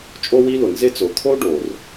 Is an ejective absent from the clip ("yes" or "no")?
no